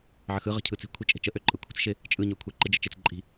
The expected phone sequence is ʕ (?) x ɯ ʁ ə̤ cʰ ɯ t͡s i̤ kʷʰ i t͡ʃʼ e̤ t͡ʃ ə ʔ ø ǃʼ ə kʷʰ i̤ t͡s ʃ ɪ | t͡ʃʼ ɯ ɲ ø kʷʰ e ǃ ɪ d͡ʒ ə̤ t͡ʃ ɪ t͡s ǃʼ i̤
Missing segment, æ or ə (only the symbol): ə